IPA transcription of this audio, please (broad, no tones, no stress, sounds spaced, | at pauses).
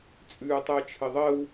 t͡sʼ ʉː tˤ əː t͡ʃʰ ɘ ðˤ ɜ w